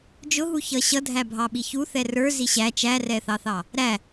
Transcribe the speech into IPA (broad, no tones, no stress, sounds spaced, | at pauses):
d͡ʒ ʊ ɦ u ç ʌ ɕ ʌ dʱ æ bʱ ɑ ɓ i ç u θ ɛ r ə˞ z i ɕ æ t͡ʃ æ r ɛ θ ɑ θ ɑ | ɾ æ